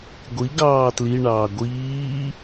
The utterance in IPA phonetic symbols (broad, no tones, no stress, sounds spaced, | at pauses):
ɡʷ i ɡ ɑː t l i ɳ ɑː ɡʷ iː